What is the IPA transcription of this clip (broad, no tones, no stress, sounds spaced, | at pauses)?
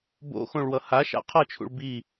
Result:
b o̰ x õ ɭ w ʌ h a ʃ a̰ qʰ ʌ t͡ʃʰ ṵ ɭ b i